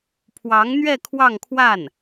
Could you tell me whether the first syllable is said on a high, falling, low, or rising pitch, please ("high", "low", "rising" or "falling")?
rising